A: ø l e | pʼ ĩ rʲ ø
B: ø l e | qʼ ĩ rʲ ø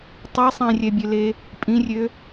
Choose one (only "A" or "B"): A